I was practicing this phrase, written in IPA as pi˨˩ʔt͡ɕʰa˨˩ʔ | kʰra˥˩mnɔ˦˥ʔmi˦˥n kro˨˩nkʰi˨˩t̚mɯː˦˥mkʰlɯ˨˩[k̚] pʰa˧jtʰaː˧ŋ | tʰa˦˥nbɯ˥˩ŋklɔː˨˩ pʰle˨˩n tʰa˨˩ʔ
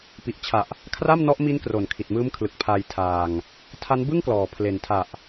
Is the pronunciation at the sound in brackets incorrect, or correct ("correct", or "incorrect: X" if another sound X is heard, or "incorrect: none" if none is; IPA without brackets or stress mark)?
correct